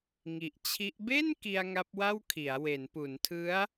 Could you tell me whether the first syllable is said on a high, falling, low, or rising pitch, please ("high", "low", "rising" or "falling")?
low